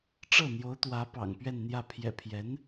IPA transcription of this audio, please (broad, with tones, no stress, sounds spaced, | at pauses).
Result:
ʈ͡ʂ ɤ˥˩ n̪ j o˧˥ ʊ̯ t̪ w ä˧˥ p ɑ̰˨˩ ŋ p ɥ ɛ˥˧ n n̪ j ä˥˩ pʰ j ɛ̰˨˩ pʰ j ɛ˧˥ n